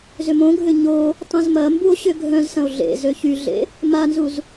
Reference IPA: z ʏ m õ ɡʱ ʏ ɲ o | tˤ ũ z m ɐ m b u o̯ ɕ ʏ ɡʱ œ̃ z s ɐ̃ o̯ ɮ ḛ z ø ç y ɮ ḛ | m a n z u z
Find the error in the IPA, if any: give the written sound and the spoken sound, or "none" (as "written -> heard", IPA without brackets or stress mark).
none